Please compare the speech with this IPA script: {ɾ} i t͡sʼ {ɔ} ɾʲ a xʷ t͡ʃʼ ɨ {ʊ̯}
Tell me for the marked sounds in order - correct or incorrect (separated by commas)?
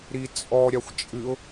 correct, correct, correct